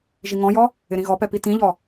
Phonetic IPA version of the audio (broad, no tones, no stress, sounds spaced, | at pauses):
ʒ i ŋ ɔ̃ j ɔ | ɪ ɾ ĩ ɣ ɔ p ɛ p i t ĩ ʎ ɔ